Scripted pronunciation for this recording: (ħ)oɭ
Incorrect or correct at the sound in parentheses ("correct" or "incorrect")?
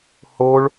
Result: incorrect